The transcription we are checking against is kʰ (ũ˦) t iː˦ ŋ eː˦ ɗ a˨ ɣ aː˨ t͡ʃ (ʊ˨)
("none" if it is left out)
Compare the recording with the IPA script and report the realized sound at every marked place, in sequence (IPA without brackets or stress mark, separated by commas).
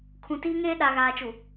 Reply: ũ˨, u˨